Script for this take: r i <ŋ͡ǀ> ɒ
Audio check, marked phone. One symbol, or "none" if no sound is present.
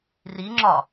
ŋ͡ǁ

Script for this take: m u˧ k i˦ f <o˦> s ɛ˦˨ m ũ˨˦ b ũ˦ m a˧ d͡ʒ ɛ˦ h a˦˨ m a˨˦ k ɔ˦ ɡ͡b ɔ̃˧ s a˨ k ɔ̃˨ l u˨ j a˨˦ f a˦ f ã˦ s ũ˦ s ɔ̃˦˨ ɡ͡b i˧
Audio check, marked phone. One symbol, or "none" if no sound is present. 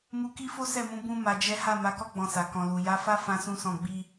o˦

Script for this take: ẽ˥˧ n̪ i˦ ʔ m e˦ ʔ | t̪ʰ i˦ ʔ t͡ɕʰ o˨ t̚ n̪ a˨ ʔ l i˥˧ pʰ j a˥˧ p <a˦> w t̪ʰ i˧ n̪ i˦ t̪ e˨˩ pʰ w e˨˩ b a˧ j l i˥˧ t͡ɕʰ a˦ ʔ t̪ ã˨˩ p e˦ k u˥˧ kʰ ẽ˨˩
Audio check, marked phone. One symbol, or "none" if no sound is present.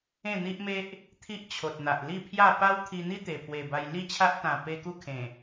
a˦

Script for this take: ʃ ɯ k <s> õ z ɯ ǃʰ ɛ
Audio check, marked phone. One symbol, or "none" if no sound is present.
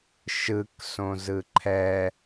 s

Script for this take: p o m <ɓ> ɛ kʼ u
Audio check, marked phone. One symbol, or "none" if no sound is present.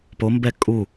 b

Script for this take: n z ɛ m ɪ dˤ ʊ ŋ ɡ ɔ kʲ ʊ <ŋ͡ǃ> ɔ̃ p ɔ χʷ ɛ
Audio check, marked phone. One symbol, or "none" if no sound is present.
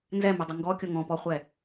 ŋ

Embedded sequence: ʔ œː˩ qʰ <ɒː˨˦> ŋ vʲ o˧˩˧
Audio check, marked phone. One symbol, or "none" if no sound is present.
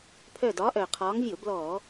ɒː˨˦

